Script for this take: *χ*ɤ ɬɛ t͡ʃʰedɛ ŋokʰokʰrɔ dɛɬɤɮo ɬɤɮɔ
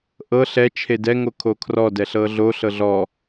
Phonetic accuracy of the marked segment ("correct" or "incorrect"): incorrect